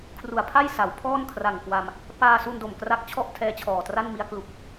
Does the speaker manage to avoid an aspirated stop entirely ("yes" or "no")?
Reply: no